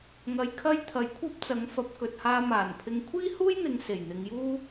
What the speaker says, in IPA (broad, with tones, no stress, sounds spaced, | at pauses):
ŋ ɐ˧ j kʰ ɐ˥ j t̪ʰ ɐ˨˥ j kʷʰ ɐ˥ p̚ t͡s ɐ˨˥ ŋ f ɐ˨˥ p̚ k ɵ˨ t̚ h aː˧ m aː˨˩ n pʰ ɪ˧ ŋ kʷʰ iː˥ h uː˥ j n̪ ɪ˨˧ ŋ s e˨˩ j n̪ ɪ˨˧ ŋ j uː˥